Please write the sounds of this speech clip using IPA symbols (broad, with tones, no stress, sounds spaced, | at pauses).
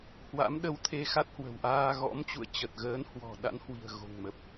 h w a̰˧˥ m ɗ ə˧ w t̪ʰ e˧ x a˦˥ t̚ h w ə̤˨˩ w ʔ aː˧ ɣ ɔ̰˧˥ m t͡ɕ ṵ˧˨ ə̯ t͡ɕ ə˨˩ t̚ ɣ əː˨˦ n h w ɔ̤˨˩ ɗ a̰˧˥ n h w i̤˨˩ ə̯ ɣ o̤˨˩ ŋ m ə˨˩ p̚